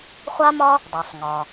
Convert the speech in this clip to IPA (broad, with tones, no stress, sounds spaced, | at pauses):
χʷ a˥ m ɒ˥ | dˤ ø˩ sˤ ŋ ɒ˩